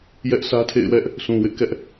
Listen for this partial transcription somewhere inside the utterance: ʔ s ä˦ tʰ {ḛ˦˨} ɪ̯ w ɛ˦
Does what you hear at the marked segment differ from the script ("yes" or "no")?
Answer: no